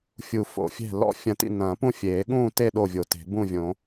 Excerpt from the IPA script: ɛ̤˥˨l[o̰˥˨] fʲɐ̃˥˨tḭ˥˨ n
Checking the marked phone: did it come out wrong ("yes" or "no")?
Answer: yes